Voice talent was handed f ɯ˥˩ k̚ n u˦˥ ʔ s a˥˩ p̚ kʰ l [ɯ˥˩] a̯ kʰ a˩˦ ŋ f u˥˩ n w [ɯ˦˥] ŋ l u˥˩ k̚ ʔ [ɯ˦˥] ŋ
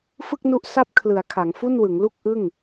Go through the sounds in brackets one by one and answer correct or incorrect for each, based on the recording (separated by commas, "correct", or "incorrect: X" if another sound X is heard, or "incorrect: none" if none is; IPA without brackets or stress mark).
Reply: incorrect: ɯ˩˦, incorrect: ɯ˩˦, incorrect: ɯ˥˩